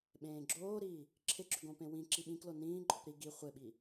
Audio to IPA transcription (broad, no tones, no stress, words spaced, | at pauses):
ɓẽːɡ͡ǁoːɾiː | ǁʰɪɡ͡ǁʏɡõpẽ wĩ ǁiɓĩklo nĩːǃʼʊp ɾi ɡi χʷɪɓi